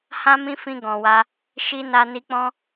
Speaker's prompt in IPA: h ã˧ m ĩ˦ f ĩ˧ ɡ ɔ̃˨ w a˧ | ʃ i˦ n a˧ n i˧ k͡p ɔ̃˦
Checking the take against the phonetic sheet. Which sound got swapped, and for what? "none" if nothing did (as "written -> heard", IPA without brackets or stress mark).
ã˧ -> ã˦